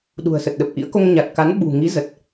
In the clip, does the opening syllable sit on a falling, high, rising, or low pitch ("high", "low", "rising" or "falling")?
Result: low